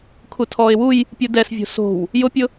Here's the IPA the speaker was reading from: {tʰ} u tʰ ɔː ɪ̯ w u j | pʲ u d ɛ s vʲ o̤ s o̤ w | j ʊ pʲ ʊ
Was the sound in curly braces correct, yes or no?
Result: no